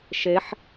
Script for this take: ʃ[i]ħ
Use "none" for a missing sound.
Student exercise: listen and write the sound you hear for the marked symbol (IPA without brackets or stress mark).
e